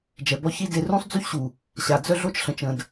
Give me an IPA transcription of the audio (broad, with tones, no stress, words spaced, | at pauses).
d͡ʒɛ˨bɔ˦çi˦de˦ rũ˦sˤd͡zy˦çɕu˨ | ɕa˨d͡zœ˦ɮo˦t͡ʃ ɬə̃˨t͡ʃə̃˨d